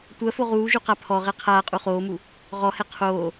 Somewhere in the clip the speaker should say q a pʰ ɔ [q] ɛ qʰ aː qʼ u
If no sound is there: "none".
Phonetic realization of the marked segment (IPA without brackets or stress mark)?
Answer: ʁ